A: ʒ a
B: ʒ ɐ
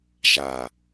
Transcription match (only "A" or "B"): A